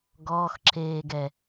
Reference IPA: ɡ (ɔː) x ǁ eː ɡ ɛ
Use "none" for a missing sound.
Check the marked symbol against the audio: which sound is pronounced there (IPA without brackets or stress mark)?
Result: ɔː